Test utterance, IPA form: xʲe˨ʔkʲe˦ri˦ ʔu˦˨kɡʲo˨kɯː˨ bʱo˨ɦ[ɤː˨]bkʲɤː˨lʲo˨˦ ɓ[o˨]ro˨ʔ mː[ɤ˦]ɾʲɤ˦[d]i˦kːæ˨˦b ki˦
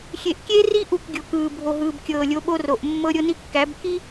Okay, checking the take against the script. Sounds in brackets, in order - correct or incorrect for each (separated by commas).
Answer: incorrect, incorrect, correct, incorrect